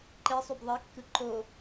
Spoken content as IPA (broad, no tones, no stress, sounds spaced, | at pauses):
ǃ e sˤ y b ðˤ e kː ɯ ǃ o